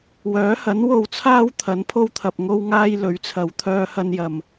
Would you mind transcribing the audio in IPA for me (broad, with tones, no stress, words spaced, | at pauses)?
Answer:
wœː˨˥hɐ˨˥n wo˨wt͡sʰaː˧w t̪ʰɐ˨˥npʰo˥wt̪ʰɐ˨p̚ ŋo˥wŋaː˥j lɵ˨˥ɥt͡sʰɐ˨˧w t̪ʰœː˥hɐ˥n jɐ˨m